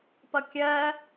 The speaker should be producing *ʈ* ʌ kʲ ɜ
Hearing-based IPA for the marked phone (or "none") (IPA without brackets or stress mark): p